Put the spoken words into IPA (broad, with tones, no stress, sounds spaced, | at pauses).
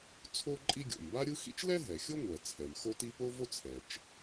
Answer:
t͡sʰ o˥ ǃʼ i˥ ɡʲ o̰˩ m b a˥ ɾʲ ɯ˥ x ḭ˥ t͡ʃ l ɛ˥ ɦ ɛ˩ xʲ o˥ ŋʷ ɛ˩ t͡sʰ ɛ˩ m x o˥ t i˥ p o˥ v o˥ t͡sʰ ɛ˩ t͡ʃ